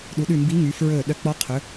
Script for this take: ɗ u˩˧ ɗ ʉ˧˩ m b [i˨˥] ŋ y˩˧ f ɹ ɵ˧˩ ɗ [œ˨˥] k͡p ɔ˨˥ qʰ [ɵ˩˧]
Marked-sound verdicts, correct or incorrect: correct, correct, correct

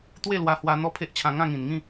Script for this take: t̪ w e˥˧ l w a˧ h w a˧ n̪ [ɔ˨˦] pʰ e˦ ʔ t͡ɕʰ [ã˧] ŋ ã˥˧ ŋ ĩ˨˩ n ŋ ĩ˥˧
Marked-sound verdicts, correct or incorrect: incorrect: ɔ˦, correct

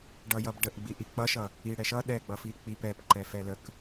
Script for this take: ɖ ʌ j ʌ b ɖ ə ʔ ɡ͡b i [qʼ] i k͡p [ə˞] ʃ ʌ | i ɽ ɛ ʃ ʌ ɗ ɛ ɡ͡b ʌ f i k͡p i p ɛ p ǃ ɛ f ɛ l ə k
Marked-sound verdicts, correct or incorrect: incorrect: ʔ, incorrect: ʌ

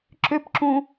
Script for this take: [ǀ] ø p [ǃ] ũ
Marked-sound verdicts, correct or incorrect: incorrect: ǁ, incorrect: ǁ

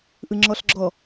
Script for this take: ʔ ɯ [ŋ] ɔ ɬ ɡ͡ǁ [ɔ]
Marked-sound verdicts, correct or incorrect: incorrect: ŋ͡ǁ, correct

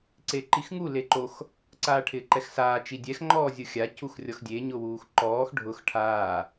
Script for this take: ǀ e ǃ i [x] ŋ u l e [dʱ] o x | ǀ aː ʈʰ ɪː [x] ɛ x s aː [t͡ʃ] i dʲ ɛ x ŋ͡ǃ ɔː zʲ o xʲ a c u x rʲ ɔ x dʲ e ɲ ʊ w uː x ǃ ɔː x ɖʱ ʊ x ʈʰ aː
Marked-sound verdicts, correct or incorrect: correct, incorrect: ǃ, incorrect: ǃ, correct

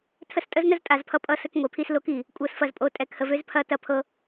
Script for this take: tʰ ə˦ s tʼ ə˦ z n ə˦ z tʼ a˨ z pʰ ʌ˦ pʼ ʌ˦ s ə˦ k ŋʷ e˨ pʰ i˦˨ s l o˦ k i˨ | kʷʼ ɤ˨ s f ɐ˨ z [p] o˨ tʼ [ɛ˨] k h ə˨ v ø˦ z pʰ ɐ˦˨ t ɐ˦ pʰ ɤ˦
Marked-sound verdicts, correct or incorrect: incorrect: pʼ, correct

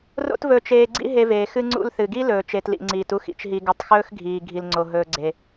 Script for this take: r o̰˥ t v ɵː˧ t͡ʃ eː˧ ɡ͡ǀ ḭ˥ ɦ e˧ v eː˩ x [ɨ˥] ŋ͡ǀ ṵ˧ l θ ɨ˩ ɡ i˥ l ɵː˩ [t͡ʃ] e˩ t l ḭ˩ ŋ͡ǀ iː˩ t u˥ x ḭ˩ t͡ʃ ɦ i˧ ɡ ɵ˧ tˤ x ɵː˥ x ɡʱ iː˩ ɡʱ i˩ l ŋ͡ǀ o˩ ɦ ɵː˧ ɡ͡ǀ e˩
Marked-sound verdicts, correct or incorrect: incorrect: ɨ˧, correct

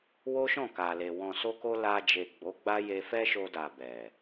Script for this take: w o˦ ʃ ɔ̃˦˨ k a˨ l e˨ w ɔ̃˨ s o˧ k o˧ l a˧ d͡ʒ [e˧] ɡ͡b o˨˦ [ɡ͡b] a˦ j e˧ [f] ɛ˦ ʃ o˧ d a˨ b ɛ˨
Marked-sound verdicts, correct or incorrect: incorrect: e˨, correct, correct

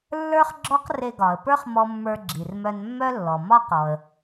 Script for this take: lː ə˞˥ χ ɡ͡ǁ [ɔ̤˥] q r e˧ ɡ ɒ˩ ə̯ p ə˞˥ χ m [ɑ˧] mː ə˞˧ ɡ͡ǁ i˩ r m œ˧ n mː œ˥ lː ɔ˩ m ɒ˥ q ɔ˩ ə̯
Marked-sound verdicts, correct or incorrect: incorrect: ɔ˥, incorrect: ɔ˧

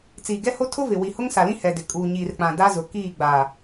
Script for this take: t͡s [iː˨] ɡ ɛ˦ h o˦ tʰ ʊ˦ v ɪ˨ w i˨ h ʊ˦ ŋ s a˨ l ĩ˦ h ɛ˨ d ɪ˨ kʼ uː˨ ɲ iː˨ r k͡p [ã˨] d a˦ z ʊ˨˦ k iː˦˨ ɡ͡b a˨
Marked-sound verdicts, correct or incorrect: correct, correct

